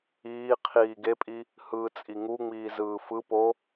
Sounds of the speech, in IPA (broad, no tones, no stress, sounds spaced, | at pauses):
iː qʰ iː ɡ e pʼ i | h ɯː t͡sʼ i ŋ u ŋ͡m iː z ɯː f ɯ p o